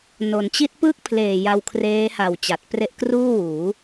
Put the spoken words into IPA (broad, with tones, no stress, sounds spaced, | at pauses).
n o˩˦ n t͡ɕ i˦˥ t̚ p ɯː˥˩ k̚ pʰ l eː˨˩ j a˧ w kʰ r eː˦˥ h a˨˩ w t͡ɕ a˨˩ t̚ p r e˦˥ ʔ k r uː˥˩ w uː˩˦